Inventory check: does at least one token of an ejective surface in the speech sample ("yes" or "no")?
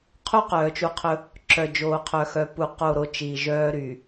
no